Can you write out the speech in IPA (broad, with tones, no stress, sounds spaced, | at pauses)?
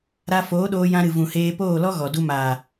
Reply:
ɾ a˧ f oː˨˦ ɗ oː˧ j ã˧ ɾ ɨ˨ v ũ˨ h eː˧ p oː˦˨ l ɔ˦ ɣ ɔ˨ d u˧ m aː˨